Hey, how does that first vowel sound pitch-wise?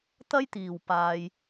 high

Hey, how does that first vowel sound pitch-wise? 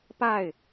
falling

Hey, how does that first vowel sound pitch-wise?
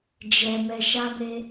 low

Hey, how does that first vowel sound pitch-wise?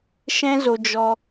high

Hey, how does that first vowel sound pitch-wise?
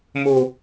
low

